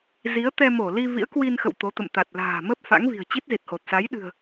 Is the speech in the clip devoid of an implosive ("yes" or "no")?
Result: no